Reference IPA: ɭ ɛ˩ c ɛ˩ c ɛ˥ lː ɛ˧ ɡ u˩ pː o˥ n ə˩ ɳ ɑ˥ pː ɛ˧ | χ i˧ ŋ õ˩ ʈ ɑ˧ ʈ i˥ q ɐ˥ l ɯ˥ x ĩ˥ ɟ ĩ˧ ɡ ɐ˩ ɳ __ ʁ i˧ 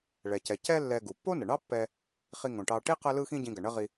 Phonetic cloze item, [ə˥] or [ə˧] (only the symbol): ə˥